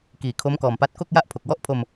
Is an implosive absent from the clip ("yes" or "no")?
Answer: yes